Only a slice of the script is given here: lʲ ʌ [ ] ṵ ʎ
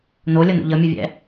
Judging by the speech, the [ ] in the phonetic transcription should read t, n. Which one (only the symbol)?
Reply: n